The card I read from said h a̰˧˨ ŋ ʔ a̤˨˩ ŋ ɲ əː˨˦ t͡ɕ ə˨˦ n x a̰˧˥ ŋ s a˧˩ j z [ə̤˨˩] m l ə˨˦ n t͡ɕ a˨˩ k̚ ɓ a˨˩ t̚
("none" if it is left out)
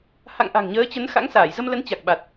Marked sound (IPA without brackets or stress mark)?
ə˧